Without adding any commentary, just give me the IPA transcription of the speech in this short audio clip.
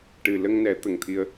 ʈ ɨ˨˩ l ə˧ ŋ n ɛ˨˩˦ t̪ ə˨˩ ŋ t̪ʰ i˧ ə̯

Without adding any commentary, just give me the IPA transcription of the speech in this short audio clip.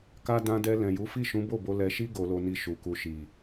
k a˦ d ã˧ d ɛ˧ l ɛ̃˨ j u˨˦ f i˦˨ ʃ ũ˨˦ b o˦˨ b o˧ l ɛ˧ ʃ i˦ ɡ o˧ l o˧ n i˧ ʃ u˨ k u˧ ʃ i˨

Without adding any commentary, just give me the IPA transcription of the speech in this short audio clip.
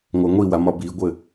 ŋʷ a ŋʷ i w a m ɒ b i ɡʷ ɘ

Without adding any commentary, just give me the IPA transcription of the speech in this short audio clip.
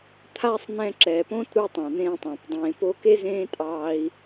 t̪ʰ a˦ sˤ n̪ ɛ̃˧ ǁ ɛ˨ p õ˦ t ɾ u˧ tˤ ɑ̃˨ n̪ ẽː˧ tˤ ã˨ p dˤ ẽː˨ p o˧ k e˦ z ẽː˦ tʼ ɑː˧ i̯

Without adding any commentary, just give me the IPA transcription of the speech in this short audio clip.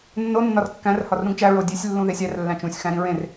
nː o nː ɒ r kː æ̃ r h ɒ r ɾ ũ ɡ t͡ʃ æ ɹ o dʲ e sʲ lː ũ ð e sʲ æ r lː æ̃ t͡ʃ ũ sʲ x æ̃ ɾ ĩ ɹ ẽ r

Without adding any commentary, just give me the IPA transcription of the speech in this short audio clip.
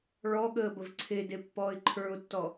ɭ ɔ ɠ əː b ə v ǀʰ e d e pː ɔː ɪ̯ ǃʰ ə˞ ʊ̯ tː ɔ

